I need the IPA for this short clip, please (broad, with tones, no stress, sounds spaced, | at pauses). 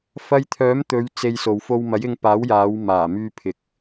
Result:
f ɐ˧ j t̪ʰ œː˨˥ m t̪ ɵ˨˧ ɥ t͡s e˧ j s o˨ w f o˧ w m ɐ˨˥ j ɪ˧ ŋ p aː˨˥ w j aː˨˧ w m aː˨˩ m yː˧ pʰ ɪ˨ k̚